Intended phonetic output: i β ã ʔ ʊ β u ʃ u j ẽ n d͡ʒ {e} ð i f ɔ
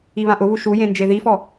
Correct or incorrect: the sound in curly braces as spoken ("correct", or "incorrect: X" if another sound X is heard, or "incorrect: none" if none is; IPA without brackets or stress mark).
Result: correct